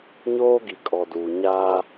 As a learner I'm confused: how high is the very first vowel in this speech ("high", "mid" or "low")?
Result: mid